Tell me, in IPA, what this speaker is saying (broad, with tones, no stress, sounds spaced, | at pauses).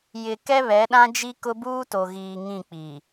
j ɪ˨ k ɛ˦ β ɛ˨˦ ɗ ã˦ d͡ʒ i˦ k ʊ˦ b uː˦ t o˨ ɣ iː˨ ŋ ĩ˦˨ k͡p i˨